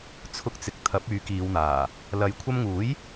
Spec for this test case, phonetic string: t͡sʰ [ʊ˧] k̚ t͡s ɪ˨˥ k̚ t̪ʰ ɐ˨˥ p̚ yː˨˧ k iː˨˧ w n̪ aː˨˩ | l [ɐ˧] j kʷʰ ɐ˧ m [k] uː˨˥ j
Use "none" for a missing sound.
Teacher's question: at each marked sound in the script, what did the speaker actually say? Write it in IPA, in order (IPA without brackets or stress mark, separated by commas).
ʊ˧, ɐ˨˧, ŋ